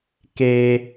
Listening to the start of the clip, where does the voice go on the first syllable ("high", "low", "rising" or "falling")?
high